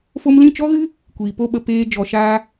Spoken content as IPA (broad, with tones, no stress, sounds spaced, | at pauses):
f o˧ m l ĩ˦˨ t͡ʃ ɔ˦ ɣ ɨ˦ | kʷ iː˨ p o˦ ɓ ə˧ p eː˧ d͡ʒ ɔ˨ ʃ aː˧